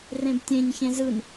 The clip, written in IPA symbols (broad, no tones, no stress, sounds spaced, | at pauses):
r ẽ b tʲ ẽ ɲ ç ẽ z ɯ n